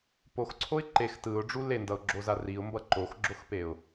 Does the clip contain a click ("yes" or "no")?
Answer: yes